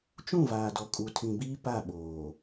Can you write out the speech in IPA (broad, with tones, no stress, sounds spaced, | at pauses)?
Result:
t͡ʃ ũ˦˨ v aː˨ d ɔ˨ kʼ u˨ tʰ ĩ˨ b iː˦ p a˦˨ ɓ oː˨